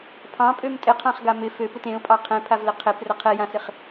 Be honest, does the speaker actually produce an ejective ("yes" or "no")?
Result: yes